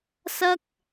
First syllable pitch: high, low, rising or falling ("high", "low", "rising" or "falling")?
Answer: high